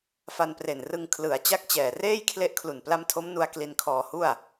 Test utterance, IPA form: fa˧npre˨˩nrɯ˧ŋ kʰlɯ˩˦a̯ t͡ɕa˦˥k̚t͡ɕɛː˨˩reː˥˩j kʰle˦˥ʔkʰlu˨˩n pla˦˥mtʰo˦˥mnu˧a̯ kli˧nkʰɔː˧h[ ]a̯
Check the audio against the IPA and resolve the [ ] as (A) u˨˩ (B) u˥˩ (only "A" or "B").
B